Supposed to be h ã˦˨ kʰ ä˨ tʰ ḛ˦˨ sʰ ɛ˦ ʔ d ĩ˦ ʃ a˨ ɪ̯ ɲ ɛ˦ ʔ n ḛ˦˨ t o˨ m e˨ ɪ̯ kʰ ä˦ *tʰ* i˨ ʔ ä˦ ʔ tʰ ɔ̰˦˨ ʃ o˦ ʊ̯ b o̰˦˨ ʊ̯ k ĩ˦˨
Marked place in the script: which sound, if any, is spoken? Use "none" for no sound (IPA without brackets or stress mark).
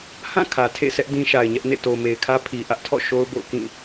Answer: pʰ